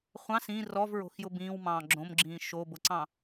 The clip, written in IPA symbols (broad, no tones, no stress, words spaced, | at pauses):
χʷɑ̃s ĩ rɔvɹo̤xjʊ bĩːwmɑ̃ː ɡ͡ǁõmɡ͡ǁĩː ʃobʊǀɑ̃